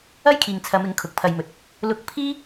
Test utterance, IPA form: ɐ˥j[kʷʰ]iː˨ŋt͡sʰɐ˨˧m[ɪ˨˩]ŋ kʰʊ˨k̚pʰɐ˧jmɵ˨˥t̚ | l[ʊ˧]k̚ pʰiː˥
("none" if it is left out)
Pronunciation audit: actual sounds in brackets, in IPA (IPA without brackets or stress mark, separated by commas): kʰ, ɪ˨˥, ʊ˥